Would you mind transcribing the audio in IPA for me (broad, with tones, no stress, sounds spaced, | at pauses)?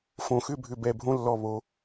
f õ˧˩ x ʏ˥˧ bʱ ʏ˧˩ b ɛ˧˩ bʱ õ˥ lː ɔ˧˩ β o˩˧